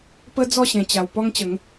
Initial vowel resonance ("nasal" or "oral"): oral